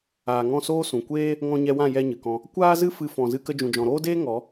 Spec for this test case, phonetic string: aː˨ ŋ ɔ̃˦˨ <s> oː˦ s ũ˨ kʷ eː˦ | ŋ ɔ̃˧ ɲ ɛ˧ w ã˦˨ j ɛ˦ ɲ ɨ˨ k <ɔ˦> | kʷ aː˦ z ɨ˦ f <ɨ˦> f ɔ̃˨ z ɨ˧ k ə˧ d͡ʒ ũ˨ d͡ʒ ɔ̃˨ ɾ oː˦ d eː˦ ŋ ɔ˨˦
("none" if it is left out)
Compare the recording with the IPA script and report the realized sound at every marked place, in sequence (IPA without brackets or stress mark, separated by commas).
s, ɔ̃˦, ɨ˧